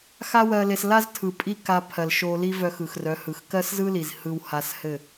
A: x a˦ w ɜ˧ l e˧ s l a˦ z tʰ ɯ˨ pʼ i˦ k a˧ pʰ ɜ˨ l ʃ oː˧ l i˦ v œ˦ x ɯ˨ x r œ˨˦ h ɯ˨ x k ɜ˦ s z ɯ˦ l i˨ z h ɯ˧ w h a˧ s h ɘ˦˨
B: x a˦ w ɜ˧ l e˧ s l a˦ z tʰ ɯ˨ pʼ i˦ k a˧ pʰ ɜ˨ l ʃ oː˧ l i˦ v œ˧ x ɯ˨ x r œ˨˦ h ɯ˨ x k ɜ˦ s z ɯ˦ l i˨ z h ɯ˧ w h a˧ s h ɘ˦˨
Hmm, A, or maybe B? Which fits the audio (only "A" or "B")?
B